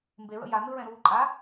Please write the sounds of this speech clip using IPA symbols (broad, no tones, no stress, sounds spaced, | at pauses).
m b e ɹ ə̰ j a n ɯ ɹ ɛ̃ ɾ uː ǃʼ a